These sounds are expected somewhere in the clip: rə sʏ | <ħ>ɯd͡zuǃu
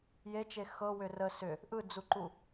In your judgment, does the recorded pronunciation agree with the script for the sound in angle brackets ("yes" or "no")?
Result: no